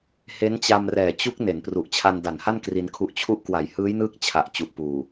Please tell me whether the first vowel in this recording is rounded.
no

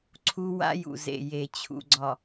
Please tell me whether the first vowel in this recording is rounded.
yes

